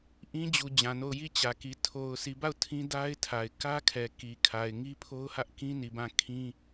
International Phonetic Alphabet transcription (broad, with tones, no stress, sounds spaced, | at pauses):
ʔ ĩ˦ d͡ʑ u˨ d͡ʑ ã˨ n o˦˨ ʊ̯ j i˦˨ t͡ɕ ä˨ k i˨ tʰ o˨ ʊ̯ sʰ i˨ b a˦˨ ʊ̯ tʰ ĩ˦ d a˦ ɪ̯ tʰ a˨ ɪ̯ k ä˦ kʰ ɛ˨ k i˨ kʰ a˨ ɪ̯ ŋ i˦ pʰ o˦ ʊ̯ h ä˦ ʔ k ĩ˦ n i˨ b ã˦˨ kʰ ĩ˦